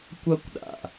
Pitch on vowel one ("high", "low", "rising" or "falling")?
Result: high